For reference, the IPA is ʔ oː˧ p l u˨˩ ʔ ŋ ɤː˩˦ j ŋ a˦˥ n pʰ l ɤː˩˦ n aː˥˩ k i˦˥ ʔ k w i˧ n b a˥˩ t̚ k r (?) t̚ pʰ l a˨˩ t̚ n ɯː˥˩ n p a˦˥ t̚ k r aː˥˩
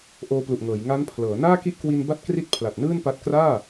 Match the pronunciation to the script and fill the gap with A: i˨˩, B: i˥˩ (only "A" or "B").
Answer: B